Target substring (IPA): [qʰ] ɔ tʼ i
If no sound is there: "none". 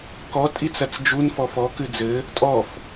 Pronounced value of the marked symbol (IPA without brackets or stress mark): k